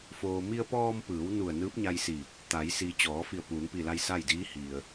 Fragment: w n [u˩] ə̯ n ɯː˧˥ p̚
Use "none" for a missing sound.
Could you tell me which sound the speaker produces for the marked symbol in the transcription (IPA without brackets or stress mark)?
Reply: u˧˩